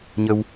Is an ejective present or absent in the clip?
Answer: absent